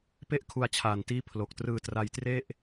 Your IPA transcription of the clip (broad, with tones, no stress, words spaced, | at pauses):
pe˥˩ʔkʰu˧a̯t͡ɕʰaː˨˩ntiː˦˥ pʰlo˨˩k̚trɯː˧ tra˧jtre˥˩ʔ